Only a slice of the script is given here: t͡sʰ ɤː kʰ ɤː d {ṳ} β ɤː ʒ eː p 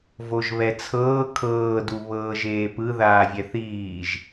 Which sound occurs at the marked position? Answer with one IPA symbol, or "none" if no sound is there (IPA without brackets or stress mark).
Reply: u